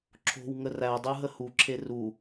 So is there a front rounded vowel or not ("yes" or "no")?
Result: no